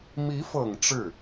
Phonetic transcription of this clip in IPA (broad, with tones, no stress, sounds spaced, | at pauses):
m i˧˥ f ɤ˨˩ ŋ ʈ͡ʂ ɻ̩˥˩